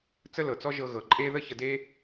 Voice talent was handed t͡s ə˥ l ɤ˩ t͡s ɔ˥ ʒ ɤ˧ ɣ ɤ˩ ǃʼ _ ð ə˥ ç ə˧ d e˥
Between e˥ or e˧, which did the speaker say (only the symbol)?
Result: e˥